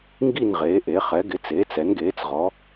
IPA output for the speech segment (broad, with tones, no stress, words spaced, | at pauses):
ŋɡi˦˨nʁeː˩˧ʔe˩˧ χɛ˩˧ɡɪ˩˧t͡seː˩˧t͡s ɛ˩˧nɡeː˩˧t͡sʁɔ˩˧